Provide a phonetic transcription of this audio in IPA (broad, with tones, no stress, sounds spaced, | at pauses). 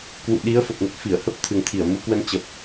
k w ṵ˧˨ ɗ i˨˦ ə̯ f ə˨˩ p̚ n ə˦˥ t̚ f i˧˩ ə̯ h ə˦˥ p̚ t̪ʰ ɨ˨˩ ŋ t̪ʰ i˧˩ ə̯ m u˨˦ k w ə˧ n t͡ɕ ə˨˩ p̚